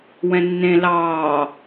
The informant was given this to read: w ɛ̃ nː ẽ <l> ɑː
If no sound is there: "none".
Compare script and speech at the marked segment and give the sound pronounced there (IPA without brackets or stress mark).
l